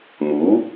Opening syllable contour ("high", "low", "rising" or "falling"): rising